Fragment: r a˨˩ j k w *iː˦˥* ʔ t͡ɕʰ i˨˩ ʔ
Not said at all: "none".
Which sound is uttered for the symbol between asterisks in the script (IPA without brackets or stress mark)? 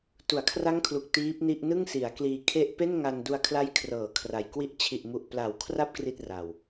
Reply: i˦˥